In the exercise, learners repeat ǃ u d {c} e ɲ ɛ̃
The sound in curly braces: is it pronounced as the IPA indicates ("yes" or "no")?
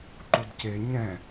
yes